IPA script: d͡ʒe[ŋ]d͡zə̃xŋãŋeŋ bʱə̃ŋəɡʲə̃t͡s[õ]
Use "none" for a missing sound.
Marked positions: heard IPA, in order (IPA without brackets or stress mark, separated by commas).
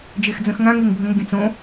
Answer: x, õ